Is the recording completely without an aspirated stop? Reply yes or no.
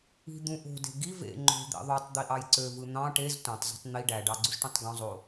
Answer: yes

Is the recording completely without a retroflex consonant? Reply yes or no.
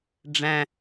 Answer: no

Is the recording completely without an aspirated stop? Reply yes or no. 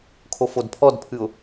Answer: no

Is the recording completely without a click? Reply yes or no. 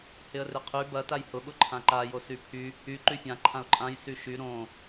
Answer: no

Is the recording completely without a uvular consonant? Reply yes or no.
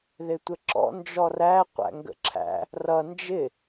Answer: no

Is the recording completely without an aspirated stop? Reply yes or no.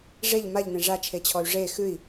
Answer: no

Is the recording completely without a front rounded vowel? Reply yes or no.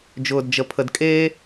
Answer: yes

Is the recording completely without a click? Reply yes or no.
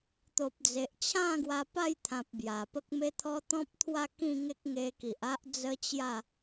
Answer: yes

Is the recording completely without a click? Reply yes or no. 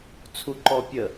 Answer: no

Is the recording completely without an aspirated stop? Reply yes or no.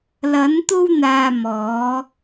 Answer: yes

